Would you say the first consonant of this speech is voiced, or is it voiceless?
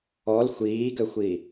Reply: voiced